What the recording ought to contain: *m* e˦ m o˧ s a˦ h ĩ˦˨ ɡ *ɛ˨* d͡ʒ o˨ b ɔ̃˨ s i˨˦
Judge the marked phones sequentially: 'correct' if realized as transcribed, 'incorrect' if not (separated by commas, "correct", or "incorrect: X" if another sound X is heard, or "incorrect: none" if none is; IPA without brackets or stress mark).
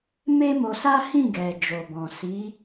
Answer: correct, correct